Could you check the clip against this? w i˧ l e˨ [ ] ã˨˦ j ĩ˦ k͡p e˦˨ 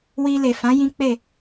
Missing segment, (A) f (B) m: A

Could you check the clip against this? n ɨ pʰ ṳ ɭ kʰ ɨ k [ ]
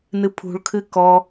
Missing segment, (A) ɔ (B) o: A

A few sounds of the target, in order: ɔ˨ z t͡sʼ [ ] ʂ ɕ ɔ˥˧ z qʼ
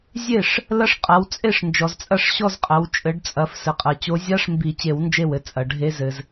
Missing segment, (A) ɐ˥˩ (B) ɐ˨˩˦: A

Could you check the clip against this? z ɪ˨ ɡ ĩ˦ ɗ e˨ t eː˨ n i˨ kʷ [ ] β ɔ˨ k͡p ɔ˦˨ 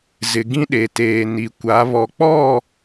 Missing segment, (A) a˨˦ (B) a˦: A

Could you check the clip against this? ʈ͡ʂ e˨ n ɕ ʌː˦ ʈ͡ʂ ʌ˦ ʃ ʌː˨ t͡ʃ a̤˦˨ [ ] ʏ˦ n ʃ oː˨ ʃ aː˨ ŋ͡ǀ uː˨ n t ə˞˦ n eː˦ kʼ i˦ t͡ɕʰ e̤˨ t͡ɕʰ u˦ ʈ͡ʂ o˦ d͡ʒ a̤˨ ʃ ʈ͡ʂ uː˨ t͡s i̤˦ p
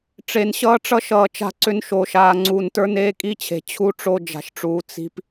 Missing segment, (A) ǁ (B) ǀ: B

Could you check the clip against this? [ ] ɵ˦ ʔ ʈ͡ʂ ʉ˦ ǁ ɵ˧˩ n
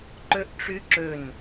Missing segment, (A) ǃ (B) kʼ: A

